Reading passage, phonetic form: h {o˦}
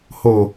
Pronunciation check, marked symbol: incorrect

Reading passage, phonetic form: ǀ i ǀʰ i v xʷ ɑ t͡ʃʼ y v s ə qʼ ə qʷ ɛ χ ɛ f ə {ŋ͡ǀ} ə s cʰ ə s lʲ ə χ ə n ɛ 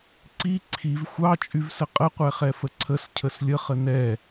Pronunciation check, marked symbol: incorrect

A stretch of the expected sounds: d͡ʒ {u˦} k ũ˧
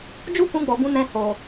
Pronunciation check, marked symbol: correct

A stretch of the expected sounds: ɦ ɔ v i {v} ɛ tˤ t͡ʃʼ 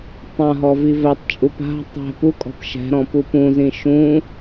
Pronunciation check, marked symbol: correct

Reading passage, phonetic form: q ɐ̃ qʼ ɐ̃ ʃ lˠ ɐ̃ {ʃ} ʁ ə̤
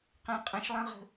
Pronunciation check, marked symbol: incorrect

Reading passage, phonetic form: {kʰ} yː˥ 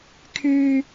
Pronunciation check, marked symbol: correct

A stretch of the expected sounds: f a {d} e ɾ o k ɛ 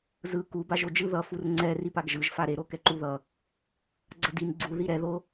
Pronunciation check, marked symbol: incorrect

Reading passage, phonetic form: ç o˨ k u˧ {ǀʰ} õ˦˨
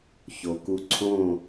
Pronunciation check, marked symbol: correct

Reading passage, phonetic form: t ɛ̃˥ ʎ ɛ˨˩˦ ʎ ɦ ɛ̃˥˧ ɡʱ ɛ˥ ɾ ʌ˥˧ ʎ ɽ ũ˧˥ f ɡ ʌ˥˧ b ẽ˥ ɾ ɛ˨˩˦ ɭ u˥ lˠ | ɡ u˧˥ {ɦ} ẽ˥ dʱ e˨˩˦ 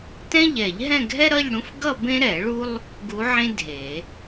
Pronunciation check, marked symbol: incorrect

